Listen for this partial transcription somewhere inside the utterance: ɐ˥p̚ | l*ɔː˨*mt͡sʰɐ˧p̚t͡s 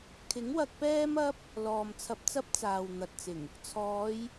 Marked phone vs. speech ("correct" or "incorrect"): correct